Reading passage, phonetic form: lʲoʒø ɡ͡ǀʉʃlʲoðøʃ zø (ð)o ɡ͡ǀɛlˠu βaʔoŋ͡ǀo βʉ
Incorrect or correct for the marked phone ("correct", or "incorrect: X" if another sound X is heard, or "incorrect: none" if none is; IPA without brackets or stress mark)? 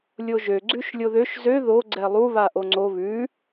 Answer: correct